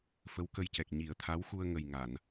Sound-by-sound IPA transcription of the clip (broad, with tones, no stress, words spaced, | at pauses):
fə˧˥wkə˧jcɛ˨˩k̚ ɲi˨˩˦ə̯t̪ʰa˧˥wxu˧ə̯ ŋə˨˩j ŋa˨˩˨n